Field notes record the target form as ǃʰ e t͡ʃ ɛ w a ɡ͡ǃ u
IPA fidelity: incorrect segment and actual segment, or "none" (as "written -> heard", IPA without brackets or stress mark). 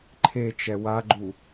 none